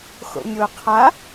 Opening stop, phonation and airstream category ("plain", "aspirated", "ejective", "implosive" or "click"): aspirated